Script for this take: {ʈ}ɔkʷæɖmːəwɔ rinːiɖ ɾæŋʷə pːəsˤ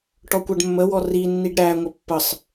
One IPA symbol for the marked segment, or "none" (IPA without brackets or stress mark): ʈ